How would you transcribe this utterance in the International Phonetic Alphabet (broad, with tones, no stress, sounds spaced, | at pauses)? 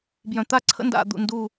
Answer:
b j œ̃˨ t̪ a˦ ǀʰ ə̰˦ n d a̰˨ d̪ ṵ˨ n d u˦˨